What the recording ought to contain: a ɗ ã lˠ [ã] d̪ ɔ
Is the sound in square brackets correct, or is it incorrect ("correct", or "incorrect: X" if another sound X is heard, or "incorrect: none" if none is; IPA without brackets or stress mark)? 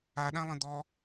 incorrect: ə̃